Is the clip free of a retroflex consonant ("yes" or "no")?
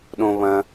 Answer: yes